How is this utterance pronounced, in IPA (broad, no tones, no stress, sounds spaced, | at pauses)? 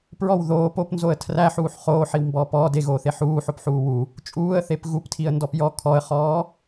p ɹ ɔ w ð oː p o p n z o ə̯ tʰ r æ ħ uː ħ χ oː ħ i w m b ɔː p ɔː d e ɣ oː θ e ħ uː ħ o p ħ uː w u | t͡ʃʼ uː ə̯ θ e p ɣ u p tʰ i ə̯ n d ɔ p j ɔ kʰ ɔ ə̯ χ ɔː